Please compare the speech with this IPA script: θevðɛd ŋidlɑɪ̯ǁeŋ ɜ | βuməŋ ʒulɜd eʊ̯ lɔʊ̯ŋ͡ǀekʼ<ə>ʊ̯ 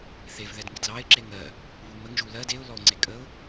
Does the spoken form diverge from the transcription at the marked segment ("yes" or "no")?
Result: no